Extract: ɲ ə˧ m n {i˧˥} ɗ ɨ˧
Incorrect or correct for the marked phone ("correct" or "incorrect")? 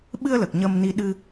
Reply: incorrect